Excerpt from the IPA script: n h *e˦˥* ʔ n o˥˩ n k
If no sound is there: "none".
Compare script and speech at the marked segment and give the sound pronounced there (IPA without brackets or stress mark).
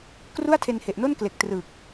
e˨˩